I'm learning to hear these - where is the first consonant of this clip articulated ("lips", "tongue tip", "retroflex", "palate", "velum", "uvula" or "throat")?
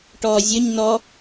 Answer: retroflex